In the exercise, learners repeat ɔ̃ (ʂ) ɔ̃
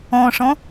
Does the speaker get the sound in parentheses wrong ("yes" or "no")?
no